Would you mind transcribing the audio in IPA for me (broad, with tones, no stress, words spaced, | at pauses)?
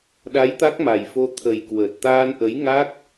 ɗa˨˦j t̪a˦˥k̚ma˨˩jfo˧ t̪ʰə˨˩jkwəː˨˩t̚ t̪aː˧nʔə˨˦jŋa˦˥k̚